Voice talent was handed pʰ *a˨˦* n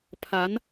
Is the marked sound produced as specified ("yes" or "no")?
yes